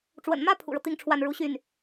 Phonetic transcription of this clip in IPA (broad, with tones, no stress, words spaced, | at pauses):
ʈ͡ʂwə̰˨˩nmä˥ pʰṵ˨˩ɻɤ˦ t̪i˥ŋ ʈ͡ʂʰwa˥˩n ɻu˧˥ɕy˥˩n